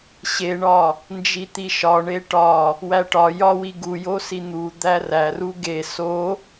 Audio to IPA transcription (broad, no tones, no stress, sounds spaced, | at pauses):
ɕ e ɳ ɒ | n d͡ʒ i t̪ i ʃ ɒ ɳ e ʈ ɒ | w æ ʈ ɒ j ɒ w i ɡ u j o s i n̪ u d̪ æ r æ r u ɡ e s o